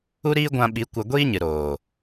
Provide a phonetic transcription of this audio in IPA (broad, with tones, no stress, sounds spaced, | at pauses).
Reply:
u˦ ɾ iː˦ ɡʷ ã˧ ɓ i˨˦ kʷ ə˧ ɡʷ iː˦ ɲ ɨ˨ ɾ oː˨